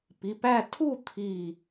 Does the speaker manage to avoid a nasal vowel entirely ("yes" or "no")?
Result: yes